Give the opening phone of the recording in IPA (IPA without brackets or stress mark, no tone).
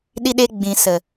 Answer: ɗ